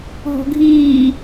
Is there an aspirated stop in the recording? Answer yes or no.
no